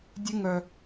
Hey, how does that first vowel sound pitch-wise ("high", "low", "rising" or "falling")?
high